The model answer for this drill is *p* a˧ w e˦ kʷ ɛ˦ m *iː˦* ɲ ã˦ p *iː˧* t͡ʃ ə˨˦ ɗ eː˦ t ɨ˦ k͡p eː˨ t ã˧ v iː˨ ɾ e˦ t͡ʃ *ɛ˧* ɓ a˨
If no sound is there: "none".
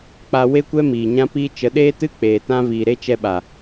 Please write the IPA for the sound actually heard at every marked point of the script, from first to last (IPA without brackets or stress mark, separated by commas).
k͡p, iː˨, iː˧, ɛ˧